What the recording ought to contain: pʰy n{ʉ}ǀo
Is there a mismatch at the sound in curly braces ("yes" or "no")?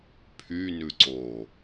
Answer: no